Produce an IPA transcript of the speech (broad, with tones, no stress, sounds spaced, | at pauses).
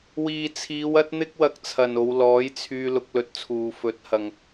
w iː˨ t͡sʰ iː˨˧ w ɐ˥ t̚ n̪ ɪ˥ k̚ w ɐ˧ k̚ t͡sʰ ɐ˨ n o˨˧ w l ɔː˨˥ j t͡sʰ yː˧ l ʊ˧ k̚ l ɵ˧ t̚ t͡sʰ uː˨ f ɵ˨˥ t̚ h ɐ˨ ŋ